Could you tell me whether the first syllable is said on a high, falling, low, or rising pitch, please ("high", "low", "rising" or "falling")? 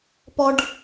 high